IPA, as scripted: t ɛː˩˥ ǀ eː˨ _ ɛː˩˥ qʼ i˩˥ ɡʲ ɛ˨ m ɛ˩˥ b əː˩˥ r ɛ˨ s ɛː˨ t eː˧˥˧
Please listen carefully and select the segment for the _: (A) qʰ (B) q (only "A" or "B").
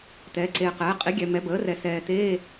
B